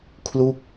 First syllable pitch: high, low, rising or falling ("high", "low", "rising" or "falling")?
falling